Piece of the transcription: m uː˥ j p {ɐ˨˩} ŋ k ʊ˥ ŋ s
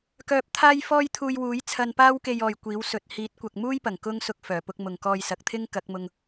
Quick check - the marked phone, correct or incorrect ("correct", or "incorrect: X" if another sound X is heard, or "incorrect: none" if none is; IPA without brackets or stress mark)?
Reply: correct